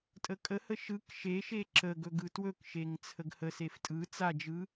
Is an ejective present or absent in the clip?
present